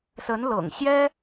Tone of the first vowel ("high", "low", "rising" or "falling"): rising